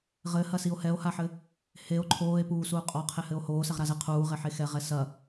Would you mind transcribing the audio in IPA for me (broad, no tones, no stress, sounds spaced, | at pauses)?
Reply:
ʁ ɘ h ɐ s i o̯ h ɛ o̯ h a ħ ɘ | h e o̯ ǃʰ oː e̯ p uː s uː qʼ ɔ qʰ e h ɘ o̯ h oː s ɛ ʁ ɾ a z ɛ qʰ uː ʁ e ħ e x ɛ ʁ ɛ s ɐ